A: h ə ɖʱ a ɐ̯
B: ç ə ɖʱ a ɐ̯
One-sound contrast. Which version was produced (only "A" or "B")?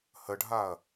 A